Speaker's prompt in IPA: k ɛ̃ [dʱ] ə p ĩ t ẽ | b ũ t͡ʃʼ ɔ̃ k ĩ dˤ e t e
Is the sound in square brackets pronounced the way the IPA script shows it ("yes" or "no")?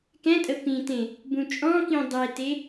no